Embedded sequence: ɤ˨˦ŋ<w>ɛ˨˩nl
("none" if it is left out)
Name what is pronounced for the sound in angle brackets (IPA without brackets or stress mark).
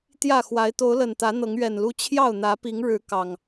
ɥ